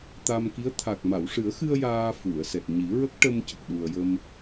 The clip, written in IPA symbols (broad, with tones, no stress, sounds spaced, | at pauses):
t̪ a˧ m k i˧˥ ə̯ t̪ʰ a˨˩ k̚ m a˨˩˨ w ʂ ɨ˨˩˦ ə̯ x ɨ˧ ə̯ j aː˧ f u˨˩˨ ə̯ s ɛ˨˩ t̚ ɲ i˨˩˦ ɹ ə˦˥ k̚ ʈ ə˧ m c ə˨˩ k̚ ɗ u˨˩ ə̯ j ə˧ m